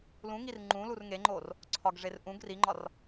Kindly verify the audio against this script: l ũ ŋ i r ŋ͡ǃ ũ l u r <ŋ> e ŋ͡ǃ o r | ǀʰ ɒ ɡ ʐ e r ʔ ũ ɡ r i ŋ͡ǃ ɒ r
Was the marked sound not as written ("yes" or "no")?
no